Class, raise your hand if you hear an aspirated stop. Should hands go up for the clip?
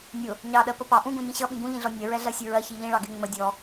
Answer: no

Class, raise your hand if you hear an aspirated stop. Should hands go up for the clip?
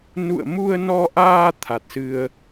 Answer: yes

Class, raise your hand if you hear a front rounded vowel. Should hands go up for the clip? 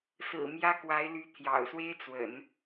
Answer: yes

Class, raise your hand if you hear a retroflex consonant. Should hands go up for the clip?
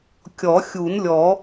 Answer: no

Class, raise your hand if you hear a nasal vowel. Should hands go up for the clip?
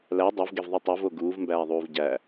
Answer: no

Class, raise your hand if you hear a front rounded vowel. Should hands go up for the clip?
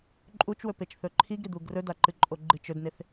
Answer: no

